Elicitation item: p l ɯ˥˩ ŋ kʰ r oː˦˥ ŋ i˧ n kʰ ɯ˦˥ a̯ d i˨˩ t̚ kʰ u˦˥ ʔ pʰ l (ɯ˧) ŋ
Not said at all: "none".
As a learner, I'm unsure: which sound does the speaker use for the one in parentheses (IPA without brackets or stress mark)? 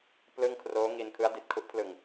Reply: ɯ˧